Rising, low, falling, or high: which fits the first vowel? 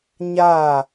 falling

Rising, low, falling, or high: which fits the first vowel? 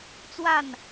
falling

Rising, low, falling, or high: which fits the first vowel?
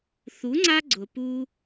rising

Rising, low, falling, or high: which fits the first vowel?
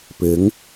rising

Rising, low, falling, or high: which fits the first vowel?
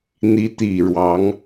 rising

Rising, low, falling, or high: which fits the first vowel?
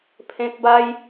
high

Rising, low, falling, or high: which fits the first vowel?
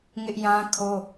high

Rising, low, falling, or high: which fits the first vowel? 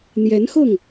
rising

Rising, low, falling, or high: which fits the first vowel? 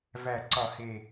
low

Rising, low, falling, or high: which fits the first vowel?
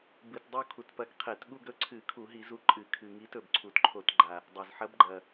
low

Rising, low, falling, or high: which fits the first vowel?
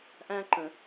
high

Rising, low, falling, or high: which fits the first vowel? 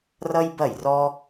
high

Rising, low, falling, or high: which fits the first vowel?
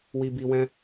low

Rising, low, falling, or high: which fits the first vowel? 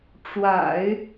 low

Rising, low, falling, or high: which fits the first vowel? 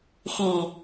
low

